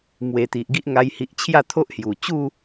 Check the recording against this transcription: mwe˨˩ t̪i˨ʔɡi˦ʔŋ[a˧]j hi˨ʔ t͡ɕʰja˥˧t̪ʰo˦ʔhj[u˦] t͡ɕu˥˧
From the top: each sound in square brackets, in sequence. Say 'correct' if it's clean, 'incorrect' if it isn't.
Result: correct, incorrect

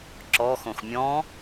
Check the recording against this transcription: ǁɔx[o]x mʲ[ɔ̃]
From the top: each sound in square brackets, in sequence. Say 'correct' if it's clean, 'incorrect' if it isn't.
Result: incorrect, correct

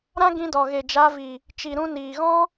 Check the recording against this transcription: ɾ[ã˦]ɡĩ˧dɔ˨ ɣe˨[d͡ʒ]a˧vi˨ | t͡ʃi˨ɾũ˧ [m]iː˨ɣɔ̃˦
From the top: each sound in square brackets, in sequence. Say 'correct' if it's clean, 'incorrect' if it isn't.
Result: correct, correct, incorrect

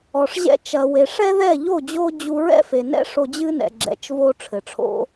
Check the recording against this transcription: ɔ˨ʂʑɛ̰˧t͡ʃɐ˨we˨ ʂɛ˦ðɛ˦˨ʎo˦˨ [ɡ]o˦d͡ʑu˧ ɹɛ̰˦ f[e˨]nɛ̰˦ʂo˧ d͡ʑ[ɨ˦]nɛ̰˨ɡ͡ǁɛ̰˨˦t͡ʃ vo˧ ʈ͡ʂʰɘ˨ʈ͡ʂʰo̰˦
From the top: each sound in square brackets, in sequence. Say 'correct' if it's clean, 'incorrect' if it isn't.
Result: incorrect, correct, correct

